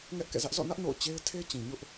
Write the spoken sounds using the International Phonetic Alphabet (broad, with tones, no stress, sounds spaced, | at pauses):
ŋ ɛ˦ ʔ k ɛ̰˦˨ z ä˦ ʔ z ɔ̰˦˨ n ä˦ ʔ n o̰˦˨ ʊ̯ t͡ɕ e˦ ɪ̯ tʰ e˦ t͡ɕ ĩ˨ ɲ ʊ˦ ʔ